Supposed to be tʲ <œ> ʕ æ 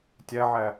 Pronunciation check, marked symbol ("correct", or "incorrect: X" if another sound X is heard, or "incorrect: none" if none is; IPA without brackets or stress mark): incorrect: æ